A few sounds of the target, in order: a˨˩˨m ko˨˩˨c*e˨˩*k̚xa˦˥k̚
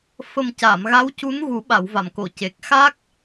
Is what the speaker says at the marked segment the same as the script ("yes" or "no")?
yes